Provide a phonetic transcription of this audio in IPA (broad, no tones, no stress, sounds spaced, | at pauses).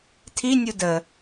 tʰ i nʲ u d ə